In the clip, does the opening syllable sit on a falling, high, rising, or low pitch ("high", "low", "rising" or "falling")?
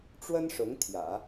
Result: high